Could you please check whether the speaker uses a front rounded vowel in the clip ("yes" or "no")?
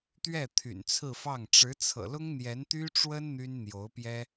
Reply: yes